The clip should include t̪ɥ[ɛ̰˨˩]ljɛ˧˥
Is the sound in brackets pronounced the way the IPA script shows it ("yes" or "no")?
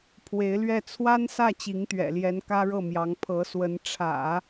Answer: yes